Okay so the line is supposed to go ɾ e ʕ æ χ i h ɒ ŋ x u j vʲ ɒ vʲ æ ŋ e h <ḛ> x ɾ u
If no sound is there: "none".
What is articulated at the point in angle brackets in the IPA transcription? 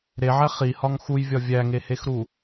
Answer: e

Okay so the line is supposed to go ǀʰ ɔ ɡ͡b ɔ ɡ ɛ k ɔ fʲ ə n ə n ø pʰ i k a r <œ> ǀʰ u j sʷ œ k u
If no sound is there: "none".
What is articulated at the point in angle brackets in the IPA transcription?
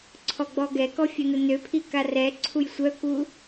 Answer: ɛ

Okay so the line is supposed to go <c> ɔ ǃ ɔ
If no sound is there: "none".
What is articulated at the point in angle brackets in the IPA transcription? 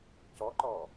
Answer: c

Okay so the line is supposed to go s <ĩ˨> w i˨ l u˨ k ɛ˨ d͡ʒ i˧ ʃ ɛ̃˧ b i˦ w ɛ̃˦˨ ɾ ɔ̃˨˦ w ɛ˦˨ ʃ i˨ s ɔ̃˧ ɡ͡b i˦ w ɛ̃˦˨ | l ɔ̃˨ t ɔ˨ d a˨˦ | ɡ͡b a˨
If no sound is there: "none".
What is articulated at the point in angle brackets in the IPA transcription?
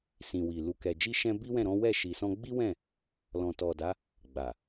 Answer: ĩ˨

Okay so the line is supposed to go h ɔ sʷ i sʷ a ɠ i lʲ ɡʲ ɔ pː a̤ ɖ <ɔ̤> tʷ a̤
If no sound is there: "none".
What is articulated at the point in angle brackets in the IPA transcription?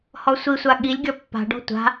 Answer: ɔ̤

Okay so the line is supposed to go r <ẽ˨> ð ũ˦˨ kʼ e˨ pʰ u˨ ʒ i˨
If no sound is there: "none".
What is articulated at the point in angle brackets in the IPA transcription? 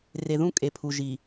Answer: e˨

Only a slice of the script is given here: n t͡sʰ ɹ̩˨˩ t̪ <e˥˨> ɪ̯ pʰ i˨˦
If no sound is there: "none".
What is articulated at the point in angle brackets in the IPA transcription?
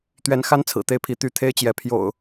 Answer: e˨˦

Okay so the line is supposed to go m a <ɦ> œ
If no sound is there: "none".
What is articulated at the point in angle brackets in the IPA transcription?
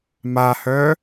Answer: h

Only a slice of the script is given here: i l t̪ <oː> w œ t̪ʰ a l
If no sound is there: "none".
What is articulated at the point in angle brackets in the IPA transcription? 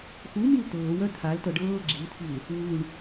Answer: ɤː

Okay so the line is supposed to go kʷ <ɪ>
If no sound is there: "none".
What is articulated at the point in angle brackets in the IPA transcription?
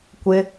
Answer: ɪ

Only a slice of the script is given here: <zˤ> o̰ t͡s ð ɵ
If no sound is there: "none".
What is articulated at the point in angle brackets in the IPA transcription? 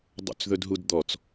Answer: dˤ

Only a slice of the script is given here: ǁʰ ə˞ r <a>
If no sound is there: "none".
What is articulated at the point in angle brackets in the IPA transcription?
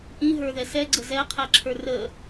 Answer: ə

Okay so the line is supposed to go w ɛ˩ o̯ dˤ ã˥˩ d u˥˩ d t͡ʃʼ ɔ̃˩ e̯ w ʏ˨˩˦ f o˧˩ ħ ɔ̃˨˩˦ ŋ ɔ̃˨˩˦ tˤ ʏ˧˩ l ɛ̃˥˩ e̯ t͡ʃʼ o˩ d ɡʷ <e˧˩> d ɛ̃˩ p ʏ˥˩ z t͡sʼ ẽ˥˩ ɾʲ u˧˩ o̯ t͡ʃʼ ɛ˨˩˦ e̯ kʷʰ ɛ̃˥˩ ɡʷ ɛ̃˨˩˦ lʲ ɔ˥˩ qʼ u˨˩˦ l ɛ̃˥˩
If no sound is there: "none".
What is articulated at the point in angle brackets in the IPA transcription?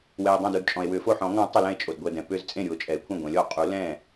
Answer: ɛ˧˩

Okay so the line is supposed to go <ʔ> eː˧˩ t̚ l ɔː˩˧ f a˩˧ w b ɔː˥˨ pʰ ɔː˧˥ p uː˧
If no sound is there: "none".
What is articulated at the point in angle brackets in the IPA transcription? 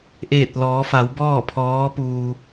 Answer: ʔ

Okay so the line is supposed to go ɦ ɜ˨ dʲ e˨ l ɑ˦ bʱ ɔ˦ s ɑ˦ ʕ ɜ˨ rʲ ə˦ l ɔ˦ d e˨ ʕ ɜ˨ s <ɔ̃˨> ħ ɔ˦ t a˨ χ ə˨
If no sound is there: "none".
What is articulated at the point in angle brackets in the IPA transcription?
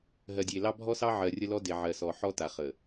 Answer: ɔ˨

